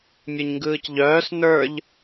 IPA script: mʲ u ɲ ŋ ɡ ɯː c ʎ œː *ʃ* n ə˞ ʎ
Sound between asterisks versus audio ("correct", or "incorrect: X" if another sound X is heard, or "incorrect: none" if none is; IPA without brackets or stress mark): incorrect: s